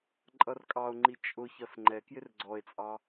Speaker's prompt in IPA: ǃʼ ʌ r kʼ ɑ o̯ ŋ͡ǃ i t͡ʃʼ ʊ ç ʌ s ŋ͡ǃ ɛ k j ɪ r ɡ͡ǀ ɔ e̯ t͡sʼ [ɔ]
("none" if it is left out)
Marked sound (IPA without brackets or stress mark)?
ɑ